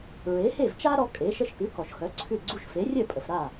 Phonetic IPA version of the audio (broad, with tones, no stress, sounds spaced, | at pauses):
ɹ e˩˥ h e˥˩ v t͡ʃ a˥ ɾ ɔ˧ kʼ e˩˥ ʃ ə˧ ʃ k ʉ˩˥ k ɔ˩ ʃ x œ˩˥ ǀʰ ʉ˥˩ ɡ͡ǀ u˥ ʃ f e˩˥ rʲ œ˥˩ pʼ ə˩ f ɾ a˥˩